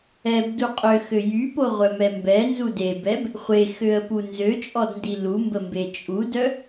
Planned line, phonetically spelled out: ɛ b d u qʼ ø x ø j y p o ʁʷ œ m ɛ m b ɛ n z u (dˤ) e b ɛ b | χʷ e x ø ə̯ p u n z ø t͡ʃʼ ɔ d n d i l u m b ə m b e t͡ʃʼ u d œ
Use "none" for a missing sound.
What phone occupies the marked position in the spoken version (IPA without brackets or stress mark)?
d